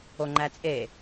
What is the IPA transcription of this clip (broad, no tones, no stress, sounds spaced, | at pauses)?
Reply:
o ŋ͡ǃ æ t͡sʼ e